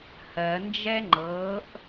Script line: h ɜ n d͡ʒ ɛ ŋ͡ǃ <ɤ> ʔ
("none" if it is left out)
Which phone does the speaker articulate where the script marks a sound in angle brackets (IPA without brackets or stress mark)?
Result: ɤ